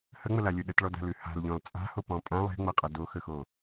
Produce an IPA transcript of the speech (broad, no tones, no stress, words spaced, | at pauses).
həŋ͡məlalʲo ɗətɭɔda̤lʉ ha̤lʎɔ̃l t͡sʼa̤hopɔ̃ pʼã lˠe̤ŋ͡mʌqʼʌ doxəxo